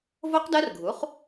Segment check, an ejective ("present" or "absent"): absent